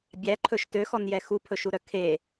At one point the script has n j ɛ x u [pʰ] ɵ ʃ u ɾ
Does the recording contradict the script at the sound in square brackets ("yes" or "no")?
no